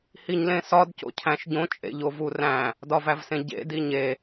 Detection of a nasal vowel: present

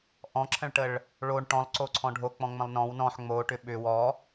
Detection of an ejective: absent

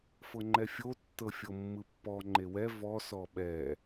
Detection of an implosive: present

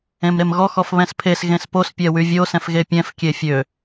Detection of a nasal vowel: present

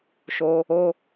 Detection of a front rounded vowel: absent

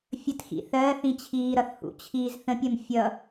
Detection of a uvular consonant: absent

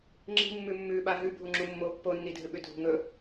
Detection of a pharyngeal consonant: absent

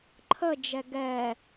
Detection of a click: present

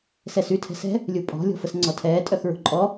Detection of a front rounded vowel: present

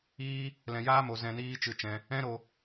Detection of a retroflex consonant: absent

